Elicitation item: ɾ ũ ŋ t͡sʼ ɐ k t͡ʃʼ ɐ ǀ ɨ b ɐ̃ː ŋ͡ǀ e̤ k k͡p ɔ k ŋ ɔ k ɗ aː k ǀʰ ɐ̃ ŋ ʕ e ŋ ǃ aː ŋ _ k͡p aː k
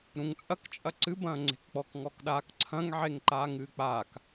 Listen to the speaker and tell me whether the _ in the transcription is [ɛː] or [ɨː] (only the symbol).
ɨː